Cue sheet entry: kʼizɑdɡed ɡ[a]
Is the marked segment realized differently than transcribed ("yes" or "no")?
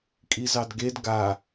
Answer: no